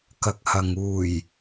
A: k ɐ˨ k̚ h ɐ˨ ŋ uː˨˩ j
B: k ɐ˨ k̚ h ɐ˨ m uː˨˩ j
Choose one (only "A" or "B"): A